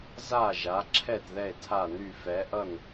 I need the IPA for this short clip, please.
z a˦˨ ʒ a˨˦ ǁʰ ɛ˦˨ t ð ɛ˦˨ e̯ tʰ a˦˨ n y˦˨ f ɛ˨˦ ʔ ʌ˦˨ n

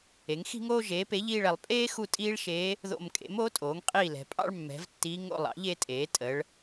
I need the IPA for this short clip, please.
e˩˥ ŋ x i̤˥ ŋ oː˥ ʒ eː˩˥ p e˩˥ ʎ iː˦˨ ɭ ɛ˩˧ lˠ pʼ eː˥ x u˦˨ tʼ iː˥ ɭ ʃ eː˧˥ | ð o̰˦˨ m kʼ ḛ˩˥ m oː˩˥ tʼ oː˩˥ ŋ qʼ iː˦˨ l ɛ̤˩˧ pʼ ɑ̰˥ ɭ mː ɛ̤˩˥ v tː iː˧˥ ŋ o̰˦˨ lˠ ɑ̰˩˥ ʎ e˥ tʼ eː˩˥ tʼ ə˩˧ ɭ

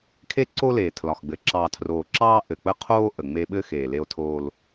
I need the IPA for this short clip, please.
kʰ e˦ ǀ o˦ l eː˨ tʰ l ɒ˨ x ɡ͡b ɘ˨ ǁ ɑː˨ tʰ r oː˨ ǁ ɑː˦ ʔ ɘ˨ k͡p ə˦ qʰ oː˦ ʔ ə˨ ŋ͡m e˦ ɓ ɘ˦ x eː˨ l e˦ o̯ tʰ oː˦ l

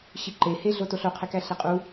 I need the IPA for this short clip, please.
ɕ i ǃ e h e ɮ o t o ɬ o qʰ e k æ ɬ e qʼ u

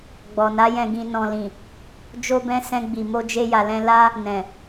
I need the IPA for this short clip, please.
ɡ͡b ɔ˨ n a˨˦ j ɛ̃˧ ɡ ĩ˧ n ɔ̃˨ l ĩ˨ | d͡ʒ o˧ b ɛ̃˧ s ɛ̃˧ ɡ͡b i˨ m o˧ d͡ʒ e˧ j a˨ l ɛ̃˧ l a˦ | n ɛ̃˨

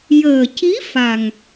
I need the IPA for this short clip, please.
j əː˨˩ c i˧˥ f a˨˩ ŋ

